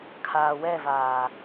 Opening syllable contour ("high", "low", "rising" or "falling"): low